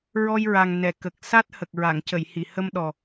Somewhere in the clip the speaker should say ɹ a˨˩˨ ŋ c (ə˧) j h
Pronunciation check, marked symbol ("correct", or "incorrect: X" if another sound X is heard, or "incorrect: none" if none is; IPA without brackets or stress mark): incorrect: ə˨˩˨